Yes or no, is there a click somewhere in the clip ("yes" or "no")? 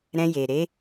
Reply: no